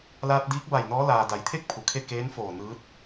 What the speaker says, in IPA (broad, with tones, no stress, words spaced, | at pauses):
laː˧t̚diː˧˥k̚ ba˧˩jnɔː˧˥ laː˩ da˩˧jt̪ʰe˥˨k̚ pʰu˩˧kʰe˥˨ keː˧˥nfoː˧˩ nɯː˧˥t̚